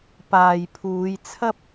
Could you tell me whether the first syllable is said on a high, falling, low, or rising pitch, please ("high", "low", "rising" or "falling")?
low